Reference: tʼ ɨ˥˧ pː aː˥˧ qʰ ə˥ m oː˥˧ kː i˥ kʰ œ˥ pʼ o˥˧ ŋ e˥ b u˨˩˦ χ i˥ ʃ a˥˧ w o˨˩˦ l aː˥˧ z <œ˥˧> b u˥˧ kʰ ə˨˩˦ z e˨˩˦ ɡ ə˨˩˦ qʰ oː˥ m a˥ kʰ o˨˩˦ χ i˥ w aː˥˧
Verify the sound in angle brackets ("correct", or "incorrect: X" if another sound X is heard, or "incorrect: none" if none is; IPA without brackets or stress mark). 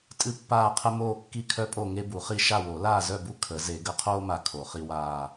correct